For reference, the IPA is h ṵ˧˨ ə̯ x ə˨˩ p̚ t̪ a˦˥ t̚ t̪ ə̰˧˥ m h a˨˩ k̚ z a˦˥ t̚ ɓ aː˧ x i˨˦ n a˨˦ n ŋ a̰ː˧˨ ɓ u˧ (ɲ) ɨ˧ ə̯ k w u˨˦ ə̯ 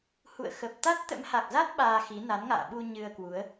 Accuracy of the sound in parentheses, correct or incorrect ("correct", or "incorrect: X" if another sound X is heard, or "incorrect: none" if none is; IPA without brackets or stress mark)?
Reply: correct